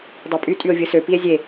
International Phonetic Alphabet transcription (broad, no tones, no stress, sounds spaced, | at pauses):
dˤ e pʼ y tʼ y o̯ vʲ ɯ s ø p i e̯ zʲ e